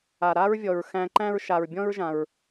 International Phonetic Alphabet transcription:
a˩ ɾaː˥ɹvʲɔ˩ɹ xæ̃˧ǃæ̃˥ɹ ʃa˩ɹbʲɔ̃˥ɹʒã˩ɹ

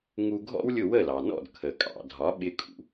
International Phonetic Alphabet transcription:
ŋu˧ɡʱɔ̰˥wlʲʊ˥˩ wə˥˩lɑ˩nɔ̰˥˩d kʰə˩kʼɑ̰˩dʱɒ˩˥ ɓɪ˧kʼṵ˩

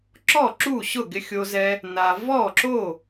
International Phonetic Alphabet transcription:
ǁɔ˥˩ǁu˥˩ɕʊ˥˩ ɡɪ˨xʲo˨zɛ˨ | na˨ vɔ˥˩ǁo˥˩

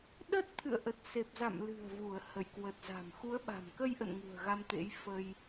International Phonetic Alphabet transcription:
ɗə˦˥t̚t̪ʰɨ̰˧˨ə̯ ʔə˨˩t̚se˨˩p̚za̰˧˨mlɨ̤˨˩ə̯ vu˧˩ə̯hə˧˩jkwə˨˩t̚za̤˨˩m xu˨˦ə̯ɓa̤˨˩mkə˧jʔə̰˧˨n ŋṳ˨˩ə̯ɣa˧mt̪ḛ˧˥j fə˧j

